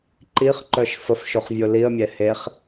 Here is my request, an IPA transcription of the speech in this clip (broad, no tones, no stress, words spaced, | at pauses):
ǃiχǃœʃ fəfʃoχvʲo liə̯mʲɛ heχ